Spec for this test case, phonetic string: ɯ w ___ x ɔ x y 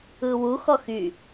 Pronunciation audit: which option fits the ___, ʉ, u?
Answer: u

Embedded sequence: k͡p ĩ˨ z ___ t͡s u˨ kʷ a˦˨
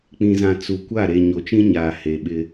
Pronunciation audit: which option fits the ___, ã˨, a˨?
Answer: ã˨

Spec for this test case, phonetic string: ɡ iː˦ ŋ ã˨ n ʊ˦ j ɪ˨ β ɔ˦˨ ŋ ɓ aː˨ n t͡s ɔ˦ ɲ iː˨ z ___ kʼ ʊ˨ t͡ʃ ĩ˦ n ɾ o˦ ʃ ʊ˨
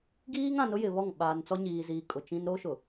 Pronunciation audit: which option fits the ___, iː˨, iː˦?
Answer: iː˨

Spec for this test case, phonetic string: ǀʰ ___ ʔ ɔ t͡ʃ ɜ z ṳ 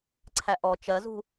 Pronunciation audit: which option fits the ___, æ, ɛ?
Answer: æ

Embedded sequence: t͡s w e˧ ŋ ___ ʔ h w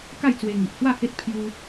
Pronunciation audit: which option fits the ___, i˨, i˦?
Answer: i˨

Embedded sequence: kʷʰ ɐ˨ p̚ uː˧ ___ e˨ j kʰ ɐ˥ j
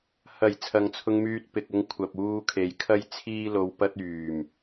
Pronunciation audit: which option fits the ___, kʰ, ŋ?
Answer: kʰ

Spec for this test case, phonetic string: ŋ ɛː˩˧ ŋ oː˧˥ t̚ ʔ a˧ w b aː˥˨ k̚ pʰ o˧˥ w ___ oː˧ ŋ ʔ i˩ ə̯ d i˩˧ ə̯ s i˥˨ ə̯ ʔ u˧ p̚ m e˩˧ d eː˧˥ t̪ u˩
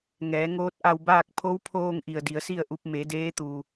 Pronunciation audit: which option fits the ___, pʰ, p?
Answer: pʰ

